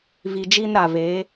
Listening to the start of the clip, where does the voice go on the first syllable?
low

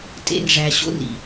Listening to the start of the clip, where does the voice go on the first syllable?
high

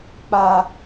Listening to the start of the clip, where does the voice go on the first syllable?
low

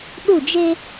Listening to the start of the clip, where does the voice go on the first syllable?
falling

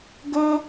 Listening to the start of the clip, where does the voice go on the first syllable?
high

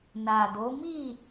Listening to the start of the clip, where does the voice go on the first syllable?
low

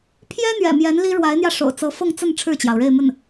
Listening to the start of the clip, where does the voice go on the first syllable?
high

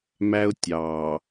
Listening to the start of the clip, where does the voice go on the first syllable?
high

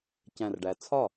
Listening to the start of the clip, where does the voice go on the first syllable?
low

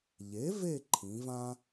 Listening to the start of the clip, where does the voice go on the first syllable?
rising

